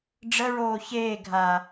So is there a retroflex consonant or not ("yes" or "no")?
yes